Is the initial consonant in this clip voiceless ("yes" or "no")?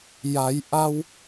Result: no